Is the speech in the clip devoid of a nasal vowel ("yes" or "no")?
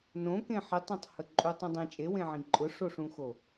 no